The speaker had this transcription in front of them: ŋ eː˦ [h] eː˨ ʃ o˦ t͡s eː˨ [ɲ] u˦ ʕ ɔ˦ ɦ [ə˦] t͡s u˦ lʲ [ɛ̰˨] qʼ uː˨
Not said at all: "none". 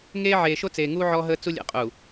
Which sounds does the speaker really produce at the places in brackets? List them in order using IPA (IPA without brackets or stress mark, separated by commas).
ʕ, ŋ, əː˦, ɛ̰˨